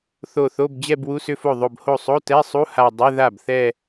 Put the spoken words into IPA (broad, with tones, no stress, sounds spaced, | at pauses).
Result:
θ o˧˩ θ o˧˥˧ b d͡ʑ ɛ˥˧ b w u˧˥˧ s ʏ˥˧ f o˥˩ ðˤ o˧˩ b h o˥˩ sˤ o˧˥˧ t ɛ˧˥˧ sˤ u˧˥˧ h a˧˩ dˤ ʏ˧˥˧ ð a˥˩ b θ ɛ˥˧